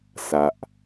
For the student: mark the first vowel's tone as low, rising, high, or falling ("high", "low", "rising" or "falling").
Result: low